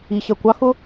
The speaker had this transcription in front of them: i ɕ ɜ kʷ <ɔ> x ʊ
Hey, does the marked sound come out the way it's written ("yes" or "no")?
no